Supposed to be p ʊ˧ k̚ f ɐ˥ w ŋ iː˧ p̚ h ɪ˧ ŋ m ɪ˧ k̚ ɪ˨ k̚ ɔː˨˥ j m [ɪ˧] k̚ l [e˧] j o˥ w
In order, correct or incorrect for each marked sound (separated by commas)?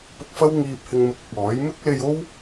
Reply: incorrect, correct